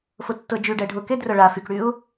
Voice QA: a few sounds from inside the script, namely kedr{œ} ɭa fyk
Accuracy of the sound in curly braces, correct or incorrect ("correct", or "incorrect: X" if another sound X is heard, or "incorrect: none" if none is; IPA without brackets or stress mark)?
correct